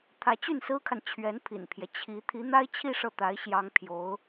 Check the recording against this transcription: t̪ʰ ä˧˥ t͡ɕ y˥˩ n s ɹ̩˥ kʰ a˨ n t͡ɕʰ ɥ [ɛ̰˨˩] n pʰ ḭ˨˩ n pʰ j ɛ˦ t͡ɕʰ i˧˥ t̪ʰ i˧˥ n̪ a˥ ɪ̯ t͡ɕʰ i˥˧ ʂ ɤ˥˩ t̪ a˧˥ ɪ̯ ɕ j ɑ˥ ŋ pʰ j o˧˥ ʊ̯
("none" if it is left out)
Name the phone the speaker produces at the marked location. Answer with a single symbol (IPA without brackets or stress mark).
ɛ˧˥